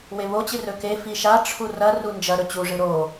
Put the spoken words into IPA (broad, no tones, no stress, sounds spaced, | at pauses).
w e β o t͡ɕ ɨ r ɵ k e f i ʃ a ʈ͡ʂʰ u r ɐ r u n d͡ʒ ɐ ɾ ɵ t͡ɕ u ʐ ɨ ɾ o